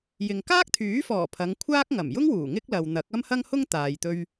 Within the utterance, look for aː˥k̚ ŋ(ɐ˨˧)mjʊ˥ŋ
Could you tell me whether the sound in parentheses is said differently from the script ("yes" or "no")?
yes